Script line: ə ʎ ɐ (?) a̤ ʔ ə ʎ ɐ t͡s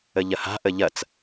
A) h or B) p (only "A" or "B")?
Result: A